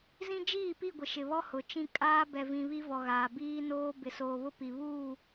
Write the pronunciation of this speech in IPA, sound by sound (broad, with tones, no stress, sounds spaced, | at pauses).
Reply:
z ĩ˦ d͡ʒ iː˦˨ p i˦˨ ɡʷ ɪ˨ ʃ ɪ˨ β ɔ˦ h ʊ˨ t͡ʃ ĩ˦ kʼ aː˦ b ɛ˨ v ĩ˨ β i˦ v ɔ˨ ɣ aː˨ b iː˦ n oː˦ b ɪ˨ s oː˨ β ʊ˦ p i˨ β uː˦˨